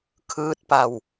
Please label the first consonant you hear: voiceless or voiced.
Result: voiceless